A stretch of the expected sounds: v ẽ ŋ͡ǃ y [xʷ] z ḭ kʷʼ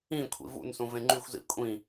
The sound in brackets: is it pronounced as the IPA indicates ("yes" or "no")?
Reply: yes